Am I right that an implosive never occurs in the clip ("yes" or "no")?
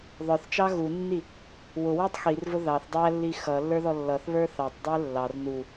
yes